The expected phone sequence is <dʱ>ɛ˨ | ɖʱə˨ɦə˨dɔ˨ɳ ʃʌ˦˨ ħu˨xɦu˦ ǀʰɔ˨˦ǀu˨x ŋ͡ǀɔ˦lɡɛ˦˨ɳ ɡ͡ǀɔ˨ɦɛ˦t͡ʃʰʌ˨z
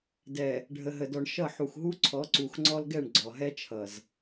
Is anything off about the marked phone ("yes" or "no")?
yes